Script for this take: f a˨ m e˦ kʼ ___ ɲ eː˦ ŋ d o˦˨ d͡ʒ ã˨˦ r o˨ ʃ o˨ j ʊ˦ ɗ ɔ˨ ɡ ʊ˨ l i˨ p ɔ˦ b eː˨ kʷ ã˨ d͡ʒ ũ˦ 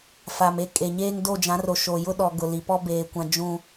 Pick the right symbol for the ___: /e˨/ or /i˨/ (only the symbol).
e˨